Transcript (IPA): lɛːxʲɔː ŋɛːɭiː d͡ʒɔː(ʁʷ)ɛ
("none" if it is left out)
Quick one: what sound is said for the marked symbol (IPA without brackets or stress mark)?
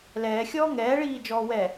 w